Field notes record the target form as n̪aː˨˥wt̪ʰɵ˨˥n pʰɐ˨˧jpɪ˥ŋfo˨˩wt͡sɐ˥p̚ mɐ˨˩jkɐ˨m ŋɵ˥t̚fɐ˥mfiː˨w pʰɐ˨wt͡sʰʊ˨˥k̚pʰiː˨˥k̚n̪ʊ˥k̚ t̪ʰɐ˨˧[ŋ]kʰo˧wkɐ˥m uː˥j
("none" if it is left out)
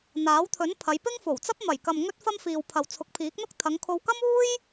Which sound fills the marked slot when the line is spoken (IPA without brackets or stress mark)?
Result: ŋ